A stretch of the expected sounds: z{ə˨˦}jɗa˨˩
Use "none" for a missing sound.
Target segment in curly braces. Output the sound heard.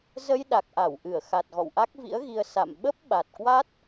ə˧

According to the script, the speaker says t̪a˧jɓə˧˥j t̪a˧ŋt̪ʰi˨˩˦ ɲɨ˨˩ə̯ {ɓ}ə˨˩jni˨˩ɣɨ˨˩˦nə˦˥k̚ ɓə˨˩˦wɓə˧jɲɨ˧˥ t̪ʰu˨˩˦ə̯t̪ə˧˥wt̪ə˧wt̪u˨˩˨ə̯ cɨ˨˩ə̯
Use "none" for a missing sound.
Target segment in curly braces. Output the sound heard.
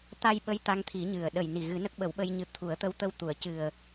ɗ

